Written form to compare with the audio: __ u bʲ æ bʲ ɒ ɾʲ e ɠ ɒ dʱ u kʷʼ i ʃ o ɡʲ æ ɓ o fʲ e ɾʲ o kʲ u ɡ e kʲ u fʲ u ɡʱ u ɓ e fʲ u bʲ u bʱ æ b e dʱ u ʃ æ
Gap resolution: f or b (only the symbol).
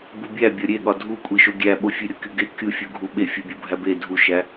b